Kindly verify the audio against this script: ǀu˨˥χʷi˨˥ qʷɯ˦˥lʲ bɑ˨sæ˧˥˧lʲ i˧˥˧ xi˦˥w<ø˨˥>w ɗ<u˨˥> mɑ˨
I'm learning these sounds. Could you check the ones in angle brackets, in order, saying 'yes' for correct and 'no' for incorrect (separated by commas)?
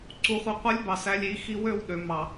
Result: no, no